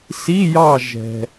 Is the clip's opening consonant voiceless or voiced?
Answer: voiceless